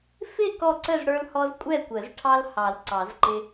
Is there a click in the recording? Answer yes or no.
yes